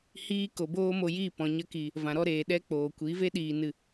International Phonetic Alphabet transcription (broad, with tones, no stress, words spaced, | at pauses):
hiː˧ko˨boː˧ mo˧jiː˦˨ pɔ̃˨ ɲə˧ki˨ | vã˨ɾɔ˧ɾeː˨ ɗɛ˧ k͡poː˨kʷi˨˦ve˦ɗiː˨ nɨ˨